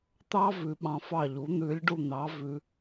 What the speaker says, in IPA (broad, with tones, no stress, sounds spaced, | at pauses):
t̪ ɑ˥ v ʉ˩˧ ɓ ɑ̃˩˧ f ɑ˧˩ ʎ u˩˧ n̪ ʉ˩˧ lʲ ɖ u˧˩ n̪ ɑ˩˧ v ʉ˩˧